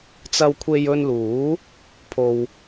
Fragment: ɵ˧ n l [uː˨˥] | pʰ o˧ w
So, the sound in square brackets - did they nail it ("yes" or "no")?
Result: yes